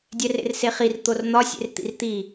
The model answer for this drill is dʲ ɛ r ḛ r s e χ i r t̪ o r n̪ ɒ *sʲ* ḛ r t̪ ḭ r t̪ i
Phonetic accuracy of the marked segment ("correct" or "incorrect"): correct